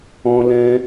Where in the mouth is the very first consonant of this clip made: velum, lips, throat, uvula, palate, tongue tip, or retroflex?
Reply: tongue tip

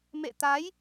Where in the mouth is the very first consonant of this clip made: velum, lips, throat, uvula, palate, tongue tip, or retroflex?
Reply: lips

